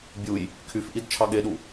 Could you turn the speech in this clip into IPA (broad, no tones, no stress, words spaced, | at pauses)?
bʲuj | kʰyfʔid t͡ʃʰɑɠeɗu